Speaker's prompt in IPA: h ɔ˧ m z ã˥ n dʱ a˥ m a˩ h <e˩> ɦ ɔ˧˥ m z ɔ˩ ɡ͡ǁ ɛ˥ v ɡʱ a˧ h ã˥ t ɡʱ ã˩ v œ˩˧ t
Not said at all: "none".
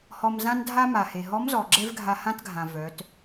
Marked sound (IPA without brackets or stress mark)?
e˩